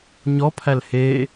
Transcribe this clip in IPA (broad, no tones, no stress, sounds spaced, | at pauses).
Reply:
ɲ ɔ pʰ æ l h eː